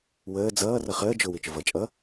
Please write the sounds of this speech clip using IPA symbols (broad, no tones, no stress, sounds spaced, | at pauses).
w əː d͡z ʌː r ʌ χ əː d͡ʒ ʊ w i t͡ʃ ʊ v ʌ t͡ʃʼ ʌ